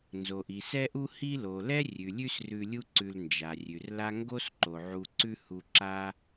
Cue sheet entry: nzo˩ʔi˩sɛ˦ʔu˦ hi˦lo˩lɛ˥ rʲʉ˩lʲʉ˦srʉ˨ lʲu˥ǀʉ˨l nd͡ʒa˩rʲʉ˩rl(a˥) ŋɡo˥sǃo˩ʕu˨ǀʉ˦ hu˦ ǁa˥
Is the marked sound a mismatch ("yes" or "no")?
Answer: no